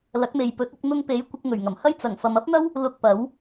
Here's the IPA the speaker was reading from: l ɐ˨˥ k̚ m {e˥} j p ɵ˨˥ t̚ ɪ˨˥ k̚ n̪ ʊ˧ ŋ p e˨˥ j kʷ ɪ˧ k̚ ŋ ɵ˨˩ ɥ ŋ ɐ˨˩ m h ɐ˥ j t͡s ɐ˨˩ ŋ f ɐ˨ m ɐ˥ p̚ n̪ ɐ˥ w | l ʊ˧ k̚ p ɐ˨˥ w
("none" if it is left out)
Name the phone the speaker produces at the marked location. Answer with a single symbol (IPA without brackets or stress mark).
e˨